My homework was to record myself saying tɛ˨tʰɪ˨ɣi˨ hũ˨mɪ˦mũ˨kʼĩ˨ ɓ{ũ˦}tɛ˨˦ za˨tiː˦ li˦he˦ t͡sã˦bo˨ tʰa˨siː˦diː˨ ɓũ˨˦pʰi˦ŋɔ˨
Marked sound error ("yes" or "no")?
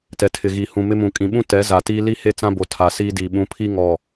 no